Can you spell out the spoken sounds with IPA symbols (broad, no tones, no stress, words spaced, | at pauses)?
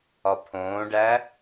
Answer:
ɒpʰõːɖæ